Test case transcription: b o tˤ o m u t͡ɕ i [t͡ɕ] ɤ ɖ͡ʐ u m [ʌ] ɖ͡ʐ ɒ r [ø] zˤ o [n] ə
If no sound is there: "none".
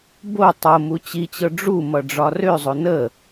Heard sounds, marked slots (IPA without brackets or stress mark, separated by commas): t͡ɕ, ʌ, ø, n